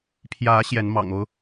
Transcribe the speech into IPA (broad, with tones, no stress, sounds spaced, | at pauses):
pʰ j ä˨˦ ɕ j ɛ˨˦ n m ɑ̰˨˩ ŋ o˦ ʊ̯